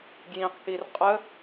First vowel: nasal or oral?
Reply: nasal